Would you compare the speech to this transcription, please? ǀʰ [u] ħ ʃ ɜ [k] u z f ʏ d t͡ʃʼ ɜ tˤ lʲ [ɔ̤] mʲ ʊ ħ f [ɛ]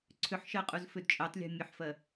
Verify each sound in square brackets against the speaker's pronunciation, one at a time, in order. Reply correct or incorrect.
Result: incorrect: ʏ, incorrect: qʼ, correct, incorrect: ɜ

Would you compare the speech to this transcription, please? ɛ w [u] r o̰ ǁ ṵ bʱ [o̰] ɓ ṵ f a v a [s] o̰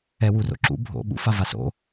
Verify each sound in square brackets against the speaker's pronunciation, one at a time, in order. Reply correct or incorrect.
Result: correct, correct, correct

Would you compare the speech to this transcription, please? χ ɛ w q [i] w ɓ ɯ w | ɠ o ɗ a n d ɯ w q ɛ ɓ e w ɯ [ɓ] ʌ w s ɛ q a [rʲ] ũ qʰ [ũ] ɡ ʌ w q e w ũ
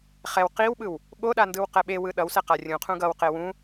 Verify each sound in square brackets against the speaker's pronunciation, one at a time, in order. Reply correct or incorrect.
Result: correct, incorrect: ɗ, correct, correct

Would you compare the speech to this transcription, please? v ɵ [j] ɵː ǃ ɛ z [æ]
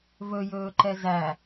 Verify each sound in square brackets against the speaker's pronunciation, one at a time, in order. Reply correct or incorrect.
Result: correct, correct

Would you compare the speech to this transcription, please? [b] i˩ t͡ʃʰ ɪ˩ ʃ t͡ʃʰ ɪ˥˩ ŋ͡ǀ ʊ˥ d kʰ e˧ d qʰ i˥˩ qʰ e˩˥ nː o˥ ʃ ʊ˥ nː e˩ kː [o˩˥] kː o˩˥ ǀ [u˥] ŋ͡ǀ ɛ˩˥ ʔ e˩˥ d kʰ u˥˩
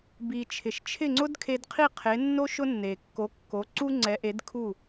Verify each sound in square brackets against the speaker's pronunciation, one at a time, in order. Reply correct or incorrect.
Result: correct, correct, correct

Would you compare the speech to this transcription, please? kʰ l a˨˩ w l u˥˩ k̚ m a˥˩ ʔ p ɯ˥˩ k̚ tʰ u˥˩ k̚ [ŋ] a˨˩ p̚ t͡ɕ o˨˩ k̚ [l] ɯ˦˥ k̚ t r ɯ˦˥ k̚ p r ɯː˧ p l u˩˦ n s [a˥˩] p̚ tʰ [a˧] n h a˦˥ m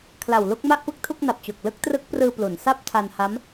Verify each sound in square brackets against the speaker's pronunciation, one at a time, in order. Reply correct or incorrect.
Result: incorrect: n, correct, correct, correct

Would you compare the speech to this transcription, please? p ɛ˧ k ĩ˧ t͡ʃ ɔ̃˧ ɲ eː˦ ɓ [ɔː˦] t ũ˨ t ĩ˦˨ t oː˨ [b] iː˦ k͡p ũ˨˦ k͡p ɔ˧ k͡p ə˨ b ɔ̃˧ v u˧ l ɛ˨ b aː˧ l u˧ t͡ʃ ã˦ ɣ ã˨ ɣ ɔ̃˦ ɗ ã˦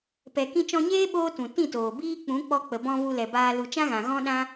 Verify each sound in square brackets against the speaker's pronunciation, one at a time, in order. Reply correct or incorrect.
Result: incorrect: oː˦, correct

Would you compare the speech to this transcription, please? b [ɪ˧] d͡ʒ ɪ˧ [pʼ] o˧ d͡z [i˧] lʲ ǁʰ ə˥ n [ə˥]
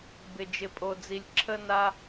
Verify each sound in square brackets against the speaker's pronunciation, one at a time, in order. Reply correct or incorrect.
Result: correct, correct, correct, incorrect: a˥

